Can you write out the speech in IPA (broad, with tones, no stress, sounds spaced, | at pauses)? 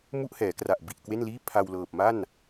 m u˥˩ ʔ h ɛː˩˦ k r a˨˩ ʔ b i˨˩ ʔ k w e˥˩ n l iː˥˩ pʰ a˧ w l ɤː˨˩ p̚ m a˥˩ n